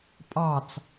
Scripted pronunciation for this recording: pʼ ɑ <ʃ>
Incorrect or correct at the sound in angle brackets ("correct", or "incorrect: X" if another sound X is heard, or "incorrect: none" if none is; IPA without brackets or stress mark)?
incorrect: t͡s